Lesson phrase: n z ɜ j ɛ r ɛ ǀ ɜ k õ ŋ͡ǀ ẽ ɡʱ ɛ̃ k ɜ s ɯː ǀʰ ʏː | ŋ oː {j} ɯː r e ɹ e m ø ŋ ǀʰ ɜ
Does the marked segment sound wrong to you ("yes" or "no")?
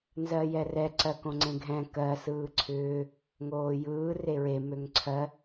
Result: no